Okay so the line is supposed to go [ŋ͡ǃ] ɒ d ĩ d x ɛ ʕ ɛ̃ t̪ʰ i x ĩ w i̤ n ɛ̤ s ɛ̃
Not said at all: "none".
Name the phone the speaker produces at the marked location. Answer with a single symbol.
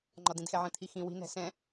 ŋ͡ǃ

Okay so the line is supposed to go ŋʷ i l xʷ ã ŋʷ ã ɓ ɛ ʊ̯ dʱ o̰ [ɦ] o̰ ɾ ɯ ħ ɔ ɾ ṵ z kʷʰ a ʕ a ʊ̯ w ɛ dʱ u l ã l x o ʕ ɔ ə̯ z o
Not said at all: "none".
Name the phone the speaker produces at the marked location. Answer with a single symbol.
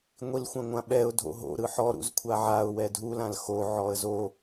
ɦ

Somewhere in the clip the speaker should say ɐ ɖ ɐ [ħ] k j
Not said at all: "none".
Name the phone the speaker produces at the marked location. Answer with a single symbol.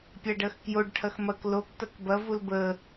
x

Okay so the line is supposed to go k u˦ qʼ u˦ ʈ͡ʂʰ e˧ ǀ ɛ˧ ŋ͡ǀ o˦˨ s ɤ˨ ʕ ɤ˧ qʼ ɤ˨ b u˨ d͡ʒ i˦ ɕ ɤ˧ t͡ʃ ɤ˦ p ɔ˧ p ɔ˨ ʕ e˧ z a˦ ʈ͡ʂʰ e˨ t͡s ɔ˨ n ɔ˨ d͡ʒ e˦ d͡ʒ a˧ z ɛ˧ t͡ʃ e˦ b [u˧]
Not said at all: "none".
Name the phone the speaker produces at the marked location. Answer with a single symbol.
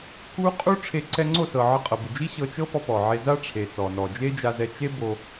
o˧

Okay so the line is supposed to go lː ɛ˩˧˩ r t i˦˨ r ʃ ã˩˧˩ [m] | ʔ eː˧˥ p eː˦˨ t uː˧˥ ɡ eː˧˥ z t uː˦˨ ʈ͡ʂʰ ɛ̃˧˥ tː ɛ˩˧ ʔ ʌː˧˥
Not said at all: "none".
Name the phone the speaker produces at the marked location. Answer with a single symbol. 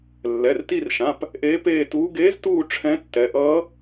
p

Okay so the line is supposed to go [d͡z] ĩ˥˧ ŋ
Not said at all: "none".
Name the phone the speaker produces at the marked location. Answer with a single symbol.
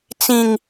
t͡s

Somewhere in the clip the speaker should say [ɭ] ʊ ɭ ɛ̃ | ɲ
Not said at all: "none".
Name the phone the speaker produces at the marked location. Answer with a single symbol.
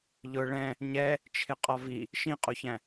ʎ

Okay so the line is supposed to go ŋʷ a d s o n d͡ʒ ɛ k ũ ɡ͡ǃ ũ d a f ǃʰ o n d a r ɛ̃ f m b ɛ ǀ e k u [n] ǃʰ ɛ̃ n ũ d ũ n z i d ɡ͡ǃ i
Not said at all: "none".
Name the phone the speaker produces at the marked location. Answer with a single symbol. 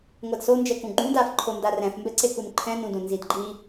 n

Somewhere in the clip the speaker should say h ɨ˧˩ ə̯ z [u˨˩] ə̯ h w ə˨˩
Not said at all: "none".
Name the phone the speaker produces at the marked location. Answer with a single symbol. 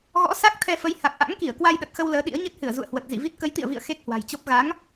ṵ˧˨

